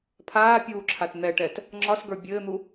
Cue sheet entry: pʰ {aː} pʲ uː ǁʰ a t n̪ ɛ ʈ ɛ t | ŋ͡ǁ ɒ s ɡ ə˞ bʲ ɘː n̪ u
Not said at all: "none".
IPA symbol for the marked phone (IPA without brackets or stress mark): aː